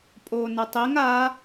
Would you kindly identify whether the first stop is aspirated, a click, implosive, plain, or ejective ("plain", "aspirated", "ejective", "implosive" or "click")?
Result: ejective